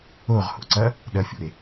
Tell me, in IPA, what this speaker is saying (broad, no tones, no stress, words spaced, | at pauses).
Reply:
oʁho̰ǀɐ | ɗɐfʲo̰e̯